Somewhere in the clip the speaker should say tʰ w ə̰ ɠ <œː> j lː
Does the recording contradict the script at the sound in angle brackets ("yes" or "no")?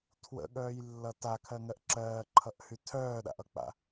no